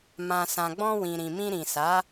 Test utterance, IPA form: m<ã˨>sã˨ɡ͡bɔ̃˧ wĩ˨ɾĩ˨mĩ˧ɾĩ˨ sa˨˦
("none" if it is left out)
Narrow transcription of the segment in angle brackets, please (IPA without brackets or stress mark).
ã˨